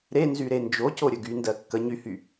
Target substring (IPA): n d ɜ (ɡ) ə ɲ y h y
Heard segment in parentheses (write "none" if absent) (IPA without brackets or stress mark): kː